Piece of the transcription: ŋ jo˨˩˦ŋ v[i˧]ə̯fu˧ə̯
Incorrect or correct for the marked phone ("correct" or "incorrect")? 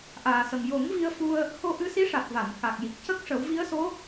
correct